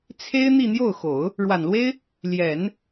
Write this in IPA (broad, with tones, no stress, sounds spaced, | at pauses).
t͡sʰ e˥ ɪ̯ n̪ i˥˧ n̪ j o˥˩ ʊ̯ x o˨˩˦ ʊ̯ | ɻ w a˨˩ n l w e˥ ɪ̯ | l j ɛ˨˩˦ n